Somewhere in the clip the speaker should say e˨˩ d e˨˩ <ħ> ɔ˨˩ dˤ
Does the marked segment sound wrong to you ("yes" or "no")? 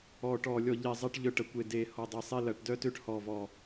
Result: yes